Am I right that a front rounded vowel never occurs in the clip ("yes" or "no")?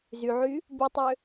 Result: no